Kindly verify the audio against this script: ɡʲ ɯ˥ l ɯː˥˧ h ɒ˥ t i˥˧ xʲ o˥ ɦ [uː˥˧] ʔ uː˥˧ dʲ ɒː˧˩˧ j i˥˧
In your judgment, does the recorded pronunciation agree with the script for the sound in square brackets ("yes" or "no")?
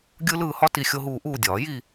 yes